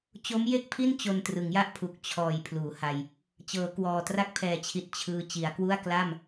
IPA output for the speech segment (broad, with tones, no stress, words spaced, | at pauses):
t͡ɕo˦˥mje˥˩k̚pʰi˥˩n t͡ɕo˧ntrɯ˩˦ŋja˥˩ʔpʰu˨˩k̚ t͡ɕʰɔː˩˦j pʰluː˩˦ha˧j | t͡ɕɤː˩˦kwɔː˨˩tra˦˥k̚ pʰɛː˨˩t͡ɕʰi˨˩t̚ t͡ɕʰɯː˧ t͡ɕi˩˦a̯kwu˥˩a̯ kla˥˩m